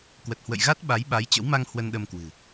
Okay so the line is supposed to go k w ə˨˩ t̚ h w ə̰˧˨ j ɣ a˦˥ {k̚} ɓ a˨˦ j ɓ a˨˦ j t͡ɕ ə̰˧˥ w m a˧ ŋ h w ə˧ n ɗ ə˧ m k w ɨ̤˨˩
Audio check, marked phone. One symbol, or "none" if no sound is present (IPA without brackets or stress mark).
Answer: t̚